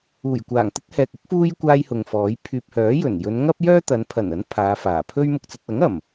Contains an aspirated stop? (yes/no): yes